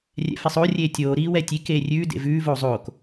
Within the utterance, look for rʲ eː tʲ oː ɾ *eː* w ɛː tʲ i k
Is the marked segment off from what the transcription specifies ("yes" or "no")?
yes